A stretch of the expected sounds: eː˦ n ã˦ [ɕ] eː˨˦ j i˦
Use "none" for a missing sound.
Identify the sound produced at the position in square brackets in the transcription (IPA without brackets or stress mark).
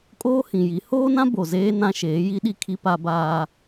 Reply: ʃ